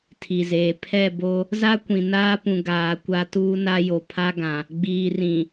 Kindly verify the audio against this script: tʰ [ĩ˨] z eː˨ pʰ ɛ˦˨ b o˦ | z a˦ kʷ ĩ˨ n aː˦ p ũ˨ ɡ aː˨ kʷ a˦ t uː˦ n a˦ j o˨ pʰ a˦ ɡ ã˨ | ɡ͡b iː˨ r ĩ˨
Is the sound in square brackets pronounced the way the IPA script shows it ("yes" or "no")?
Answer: no